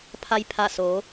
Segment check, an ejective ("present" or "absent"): absent